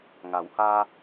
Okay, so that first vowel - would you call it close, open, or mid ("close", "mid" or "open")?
open